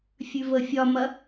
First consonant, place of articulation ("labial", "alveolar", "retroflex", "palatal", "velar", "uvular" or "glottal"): labial